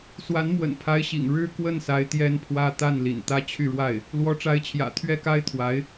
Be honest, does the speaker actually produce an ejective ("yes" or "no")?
no